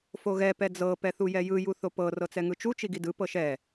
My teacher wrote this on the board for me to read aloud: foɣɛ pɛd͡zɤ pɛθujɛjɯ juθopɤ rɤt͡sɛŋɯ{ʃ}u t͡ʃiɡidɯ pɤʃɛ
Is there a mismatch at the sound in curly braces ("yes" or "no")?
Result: yes